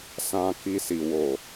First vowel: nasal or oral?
nasal